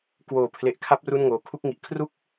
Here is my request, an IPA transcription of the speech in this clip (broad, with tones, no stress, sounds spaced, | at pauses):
k w oː˩˦ pʰ l e˨˩ ʔ kʰ a˦˥ p̚ r u˥˩ n ŋ oː˨˩ kʰ u˥˩ k̚ ŋ i˨˩ ʔ kʰ r u˥˩ k̚